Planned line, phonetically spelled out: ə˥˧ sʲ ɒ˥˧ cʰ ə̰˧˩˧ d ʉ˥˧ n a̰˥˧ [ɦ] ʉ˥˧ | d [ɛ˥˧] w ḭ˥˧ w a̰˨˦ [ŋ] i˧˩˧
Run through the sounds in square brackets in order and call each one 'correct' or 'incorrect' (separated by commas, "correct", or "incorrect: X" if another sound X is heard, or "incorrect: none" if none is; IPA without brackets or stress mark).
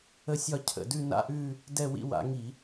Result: incorrect: ʔ, correct, correct